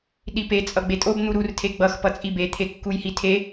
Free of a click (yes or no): yes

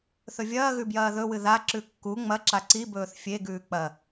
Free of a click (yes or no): no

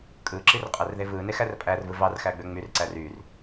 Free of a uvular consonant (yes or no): no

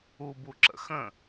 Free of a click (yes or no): no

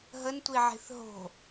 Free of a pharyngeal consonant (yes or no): no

